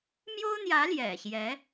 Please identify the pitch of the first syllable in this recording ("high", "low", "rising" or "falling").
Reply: high